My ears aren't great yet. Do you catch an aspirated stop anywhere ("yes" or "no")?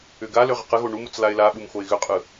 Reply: no